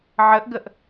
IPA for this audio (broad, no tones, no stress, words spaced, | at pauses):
ʕəʔɡəʔ